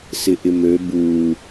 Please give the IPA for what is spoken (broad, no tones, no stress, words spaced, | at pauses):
sɪʔɪmø bu